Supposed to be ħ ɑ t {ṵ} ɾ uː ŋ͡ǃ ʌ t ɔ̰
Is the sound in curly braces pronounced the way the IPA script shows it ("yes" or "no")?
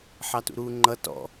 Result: yes